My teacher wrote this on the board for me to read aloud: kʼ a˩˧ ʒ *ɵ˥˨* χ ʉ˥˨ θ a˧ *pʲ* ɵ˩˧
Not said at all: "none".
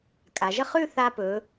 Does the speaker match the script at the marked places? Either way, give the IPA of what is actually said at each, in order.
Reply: ə˥˨, p

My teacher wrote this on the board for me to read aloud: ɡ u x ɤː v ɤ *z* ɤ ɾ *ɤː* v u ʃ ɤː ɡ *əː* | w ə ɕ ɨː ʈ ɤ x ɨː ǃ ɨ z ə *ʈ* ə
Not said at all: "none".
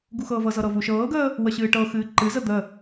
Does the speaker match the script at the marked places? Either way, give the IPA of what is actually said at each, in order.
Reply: z, ɤ, əː, d̪

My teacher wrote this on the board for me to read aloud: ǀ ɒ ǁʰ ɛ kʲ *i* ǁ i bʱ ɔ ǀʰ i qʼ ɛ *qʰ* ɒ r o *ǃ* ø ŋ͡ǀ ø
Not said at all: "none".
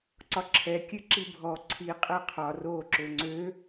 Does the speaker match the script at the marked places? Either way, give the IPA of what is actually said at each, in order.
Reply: ɨ, qʰ, ǁ

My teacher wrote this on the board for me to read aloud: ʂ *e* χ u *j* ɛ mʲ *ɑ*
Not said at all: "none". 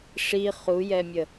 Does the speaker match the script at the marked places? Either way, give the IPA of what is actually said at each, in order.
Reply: i, j, ə

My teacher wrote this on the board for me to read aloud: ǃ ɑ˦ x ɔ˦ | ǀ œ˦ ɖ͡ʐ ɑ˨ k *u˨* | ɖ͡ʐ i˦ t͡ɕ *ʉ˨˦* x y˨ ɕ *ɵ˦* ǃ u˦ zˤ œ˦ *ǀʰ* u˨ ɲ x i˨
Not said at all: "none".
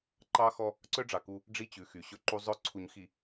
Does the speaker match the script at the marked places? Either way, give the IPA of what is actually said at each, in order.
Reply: u˦, ʉ˨˦, ɵ˦, ǀʰ

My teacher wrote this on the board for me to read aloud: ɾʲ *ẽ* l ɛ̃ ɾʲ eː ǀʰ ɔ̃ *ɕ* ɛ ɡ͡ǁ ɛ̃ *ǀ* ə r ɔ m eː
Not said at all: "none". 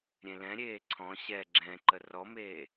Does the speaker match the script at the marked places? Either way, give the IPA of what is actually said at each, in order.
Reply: ẽ, ɕ, ǃ

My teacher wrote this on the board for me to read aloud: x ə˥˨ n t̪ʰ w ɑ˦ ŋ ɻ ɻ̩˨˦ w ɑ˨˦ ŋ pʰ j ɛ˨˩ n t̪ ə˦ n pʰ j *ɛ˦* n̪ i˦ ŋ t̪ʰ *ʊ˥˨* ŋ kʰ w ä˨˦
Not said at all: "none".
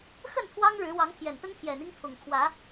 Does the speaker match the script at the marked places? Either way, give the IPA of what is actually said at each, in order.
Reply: ɛ˨˩, ʊ˨˩

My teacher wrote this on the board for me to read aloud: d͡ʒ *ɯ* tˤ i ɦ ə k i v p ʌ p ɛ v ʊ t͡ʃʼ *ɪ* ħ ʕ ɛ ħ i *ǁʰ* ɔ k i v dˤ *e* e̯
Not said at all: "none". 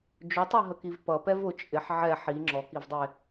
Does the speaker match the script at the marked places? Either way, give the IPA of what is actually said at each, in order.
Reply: ʊ, ɪ, ŋ͡ǁ, i

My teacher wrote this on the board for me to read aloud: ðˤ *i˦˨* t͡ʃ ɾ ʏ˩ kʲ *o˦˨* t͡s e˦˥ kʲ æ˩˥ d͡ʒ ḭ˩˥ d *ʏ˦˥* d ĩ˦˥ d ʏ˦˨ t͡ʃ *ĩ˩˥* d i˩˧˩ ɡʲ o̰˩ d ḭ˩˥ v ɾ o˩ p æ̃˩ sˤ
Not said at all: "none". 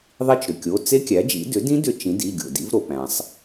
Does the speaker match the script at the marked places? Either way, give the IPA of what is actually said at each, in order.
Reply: i˦˨, o˩˧˩, ʏ˩˥, ĩ˩˥

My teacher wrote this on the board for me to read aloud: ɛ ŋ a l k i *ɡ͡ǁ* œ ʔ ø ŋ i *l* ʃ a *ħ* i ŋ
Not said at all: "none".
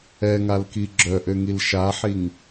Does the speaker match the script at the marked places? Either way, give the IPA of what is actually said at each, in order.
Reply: ɡ͡ǁ, l, ħ

